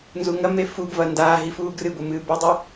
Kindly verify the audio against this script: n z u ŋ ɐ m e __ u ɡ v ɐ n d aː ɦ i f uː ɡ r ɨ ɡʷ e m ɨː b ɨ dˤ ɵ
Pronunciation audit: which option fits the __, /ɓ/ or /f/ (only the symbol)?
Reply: f